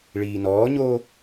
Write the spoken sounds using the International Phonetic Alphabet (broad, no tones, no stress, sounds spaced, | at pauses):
ɭ iː n ɔː ɲ oː